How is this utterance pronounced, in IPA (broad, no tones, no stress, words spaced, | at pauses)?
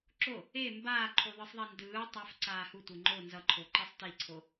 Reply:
ǁo | e mbaːǃʰu ðˤɯsˤðˤɛndɯː tˤaf ǀaːhu tʷeŋ͡ǃo nzʌǃʰoǃisˤ tiǀʰo